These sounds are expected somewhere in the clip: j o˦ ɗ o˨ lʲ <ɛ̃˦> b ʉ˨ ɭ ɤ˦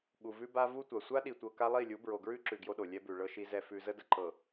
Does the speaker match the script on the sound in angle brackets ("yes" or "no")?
no